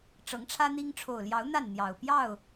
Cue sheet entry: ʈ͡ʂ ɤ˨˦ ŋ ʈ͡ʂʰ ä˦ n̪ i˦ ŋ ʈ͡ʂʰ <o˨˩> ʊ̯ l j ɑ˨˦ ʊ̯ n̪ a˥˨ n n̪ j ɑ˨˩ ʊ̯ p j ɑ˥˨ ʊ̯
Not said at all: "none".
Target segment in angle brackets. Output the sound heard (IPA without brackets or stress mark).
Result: o˨˩